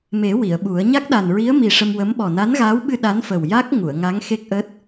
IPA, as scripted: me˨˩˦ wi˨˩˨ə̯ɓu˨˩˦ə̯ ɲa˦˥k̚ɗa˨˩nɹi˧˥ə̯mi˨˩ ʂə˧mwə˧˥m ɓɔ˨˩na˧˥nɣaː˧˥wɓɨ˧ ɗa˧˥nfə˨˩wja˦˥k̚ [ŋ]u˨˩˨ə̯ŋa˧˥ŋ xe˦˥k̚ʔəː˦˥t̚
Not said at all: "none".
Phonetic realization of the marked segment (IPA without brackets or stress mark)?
ŋ